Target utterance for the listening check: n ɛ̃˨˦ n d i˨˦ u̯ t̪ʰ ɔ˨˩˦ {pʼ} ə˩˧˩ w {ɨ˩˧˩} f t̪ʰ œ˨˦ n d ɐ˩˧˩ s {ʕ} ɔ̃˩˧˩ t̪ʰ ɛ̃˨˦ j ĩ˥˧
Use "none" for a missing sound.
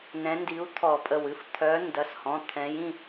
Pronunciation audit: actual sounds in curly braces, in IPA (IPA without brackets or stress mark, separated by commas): pʼ, ɨ˩˧˩, h